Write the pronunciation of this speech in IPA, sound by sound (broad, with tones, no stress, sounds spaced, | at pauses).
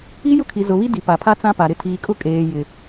i˦ j ʊ˦ kʰ i˨ z ʊ˨ β i˦ d i˨ p a˨ pʰ a˦ t͡s ã˦ p a˨ ɾ ɪ˦ tʰ iː˨ kʼ ʊ˦ kʼ eː˨ j ɪ˨